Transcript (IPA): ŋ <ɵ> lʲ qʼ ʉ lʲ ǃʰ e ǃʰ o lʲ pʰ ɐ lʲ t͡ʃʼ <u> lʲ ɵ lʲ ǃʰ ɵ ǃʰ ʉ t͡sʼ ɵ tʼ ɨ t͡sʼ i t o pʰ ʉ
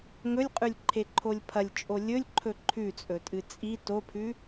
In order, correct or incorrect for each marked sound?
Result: correct, incorrect: o

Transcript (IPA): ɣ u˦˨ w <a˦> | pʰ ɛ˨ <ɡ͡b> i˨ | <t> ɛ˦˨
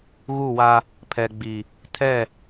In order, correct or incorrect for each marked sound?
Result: correct, correct, incorrect: tʰ

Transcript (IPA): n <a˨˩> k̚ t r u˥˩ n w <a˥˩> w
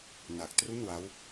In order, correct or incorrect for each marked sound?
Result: correct, incorrect: a˦˥

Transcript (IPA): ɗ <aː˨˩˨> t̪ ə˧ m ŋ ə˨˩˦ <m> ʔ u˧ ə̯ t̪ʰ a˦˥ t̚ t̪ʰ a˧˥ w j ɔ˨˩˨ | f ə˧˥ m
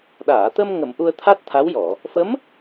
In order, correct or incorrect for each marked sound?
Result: correct, correct

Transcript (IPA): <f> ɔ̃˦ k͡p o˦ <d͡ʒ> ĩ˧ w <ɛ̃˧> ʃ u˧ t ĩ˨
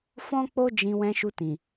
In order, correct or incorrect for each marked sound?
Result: correct, correct, correct

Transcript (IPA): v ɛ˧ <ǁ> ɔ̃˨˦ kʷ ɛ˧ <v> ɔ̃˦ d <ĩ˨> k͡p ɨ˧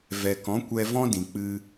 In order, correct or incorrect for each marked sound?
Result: incorrect: k, correct, correct

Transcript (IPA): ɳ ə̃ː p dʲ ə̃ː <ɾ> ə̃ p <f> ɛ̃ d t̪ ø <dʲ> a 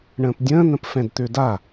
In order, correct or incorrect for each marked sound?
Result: incorrect: n̪, correct, incorrect: d

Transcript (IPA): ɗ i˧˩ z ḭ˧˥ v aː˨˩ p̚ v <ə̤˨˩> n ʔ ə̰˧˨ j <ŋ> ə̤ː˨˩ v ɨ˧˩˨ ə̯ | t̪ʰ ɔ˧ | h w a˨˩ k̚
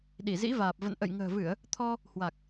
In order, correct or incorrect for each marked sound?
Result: incorrect: ə̰˧˨, correct

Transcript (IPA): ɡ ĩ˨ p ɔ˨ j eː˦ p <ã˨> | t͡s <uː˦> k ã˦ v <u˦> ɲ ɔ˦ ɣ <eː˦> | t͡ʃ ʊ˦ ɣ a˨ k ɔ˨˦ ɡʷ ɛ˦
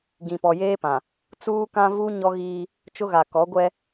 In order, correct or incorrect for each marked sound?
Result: correct, correct, correct, incorrect: iː˦

